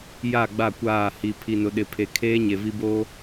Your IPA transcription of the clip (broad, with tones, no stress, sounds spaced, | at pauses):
j a˦˨ ɡ͡b a˦˨ kʷ aː˦˨ h i˨ pʰ i˨ n ʊ˨ ɗ ɪ˨ pʰ e˨ kʰ eː˦ ɲ e˨ v i˦ b oː˦